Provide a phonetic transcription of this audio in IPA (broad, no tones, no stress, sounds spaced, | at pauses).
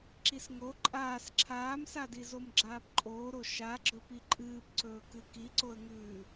ǁ i s ŋ o ǃʼ aː s ǁʰ aː m s a d i z o m ɡ͡ǁ aː p ǃʼ oː ɾ o ʃ a ɡ͡ǁ ɵ p i ǃʼ ɨː p ǀ ɵː k ɨ k i ǀ o ə̯ ŋ ʉː